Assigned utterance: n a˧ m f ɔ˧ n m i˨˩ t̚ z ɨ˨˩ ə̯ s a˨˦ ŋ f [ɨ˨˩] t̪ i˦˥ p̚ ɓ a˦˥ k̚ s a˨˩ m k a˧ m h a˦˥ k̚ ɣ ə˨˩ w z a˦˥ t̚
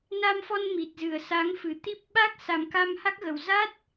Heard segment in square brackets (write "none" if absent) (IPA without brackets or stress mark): ɨ˨˩